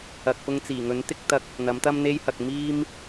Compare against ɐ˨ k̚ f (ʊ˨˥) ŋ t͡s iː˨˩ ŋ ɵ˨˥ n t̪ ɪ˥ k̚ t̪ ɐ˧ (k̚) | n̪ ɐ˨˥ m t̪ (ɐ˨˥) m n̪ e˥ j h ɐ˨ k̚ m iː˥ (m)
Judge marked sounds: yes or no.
no, yes, no, yes

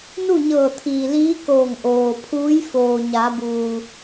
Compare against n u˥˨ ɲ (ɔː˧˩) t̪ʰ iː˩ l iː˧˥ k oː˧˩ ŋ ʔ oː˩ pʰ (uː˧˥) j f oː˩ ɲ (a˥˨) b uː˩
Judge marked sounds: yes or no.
no, yes, no

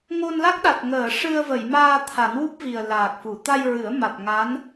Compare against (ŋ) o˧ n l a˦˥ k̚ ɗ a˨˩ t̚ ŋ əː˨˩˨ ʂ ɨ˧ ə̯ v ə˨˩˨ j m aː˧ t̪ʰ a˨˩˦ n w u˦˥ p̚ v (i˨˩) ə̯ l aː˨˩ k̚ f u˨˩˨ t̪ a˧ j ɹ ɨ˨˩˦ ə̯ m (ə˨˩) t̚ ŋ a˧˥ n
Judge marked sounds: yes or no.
yes, yes, no

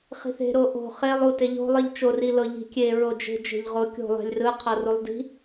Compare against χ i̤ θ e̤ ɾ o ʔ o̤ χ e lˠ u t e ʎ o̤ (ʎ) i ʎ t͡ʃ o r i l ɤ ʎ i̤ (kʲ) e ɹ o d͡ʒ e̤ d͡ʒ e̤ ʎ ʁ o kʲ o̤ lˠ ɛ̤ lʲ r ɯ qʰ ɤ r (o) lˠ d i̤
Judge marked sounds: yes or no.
no, yes, no

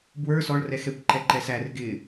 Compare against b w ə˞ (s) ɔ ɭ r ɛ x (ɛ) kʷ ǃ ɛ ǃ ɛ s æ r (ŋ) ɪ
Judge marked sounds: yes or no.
yes, yes, no

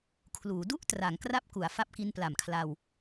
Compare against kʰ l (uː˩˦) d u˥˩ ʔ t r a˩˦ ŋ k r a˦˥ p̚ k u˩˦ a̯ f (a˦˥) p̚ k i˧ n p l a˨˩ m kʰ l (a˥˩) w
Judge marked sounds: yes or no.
yes, yes, no

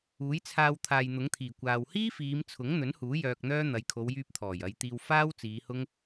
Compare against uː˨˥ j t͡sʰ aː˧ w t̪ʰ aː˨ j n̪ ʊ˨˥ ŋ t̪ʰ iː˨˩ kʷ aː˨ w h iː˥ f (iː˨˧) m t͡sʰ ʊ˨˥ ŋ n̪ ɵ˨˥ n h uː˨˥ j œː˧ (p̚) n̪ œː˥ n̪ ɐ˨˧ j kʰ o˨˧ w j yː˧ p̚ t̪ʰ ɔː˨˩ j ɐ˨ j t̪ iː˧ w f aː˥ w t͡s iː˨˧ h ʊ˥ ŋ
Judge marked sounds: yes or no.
yes, no

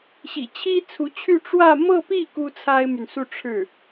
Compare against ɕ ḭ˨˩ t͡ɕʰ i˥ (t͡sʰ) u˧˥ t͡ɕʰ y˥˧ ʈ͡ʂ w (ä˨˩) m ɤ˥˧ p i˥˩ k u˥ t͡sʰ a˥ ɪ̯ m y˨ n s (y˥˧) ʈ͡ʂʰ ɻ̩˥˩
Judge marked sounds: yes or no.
yes, no, no

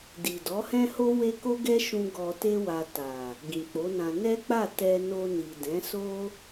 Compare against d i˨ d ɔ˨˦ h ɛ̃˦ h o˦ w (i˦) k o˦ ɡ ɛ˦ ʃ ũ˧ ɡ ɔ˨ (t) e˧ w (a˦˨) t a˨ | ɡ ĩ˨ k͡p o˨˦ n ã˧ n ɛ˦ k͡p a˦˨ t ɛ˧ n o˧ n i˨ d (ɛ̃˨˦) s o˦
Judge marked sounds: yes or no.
no, yes, no, yes

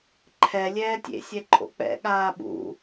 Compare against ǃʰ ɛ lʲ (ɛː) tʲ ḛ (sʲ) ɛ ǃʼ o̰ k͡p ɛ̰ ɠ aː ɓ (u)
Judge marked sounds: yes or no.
yes, yes, no

